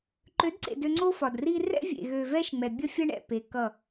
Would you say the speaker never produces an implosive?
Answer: yes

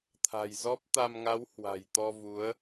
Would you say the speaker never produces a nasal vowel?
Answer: yes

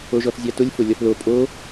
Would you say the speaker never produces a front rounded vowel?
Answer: yes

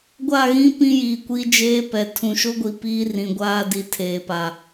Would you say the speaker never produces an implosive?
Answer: yes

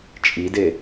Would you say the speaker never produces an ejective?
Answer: no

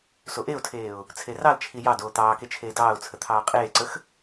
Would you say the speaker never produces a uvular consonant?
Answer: no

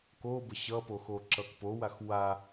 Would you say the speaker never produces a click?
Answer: no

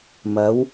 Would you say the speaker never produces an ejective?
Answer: yes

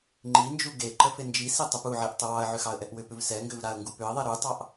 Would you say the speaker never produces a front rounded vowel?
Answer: no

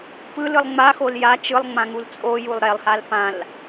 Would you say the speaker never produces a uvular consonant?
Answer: yes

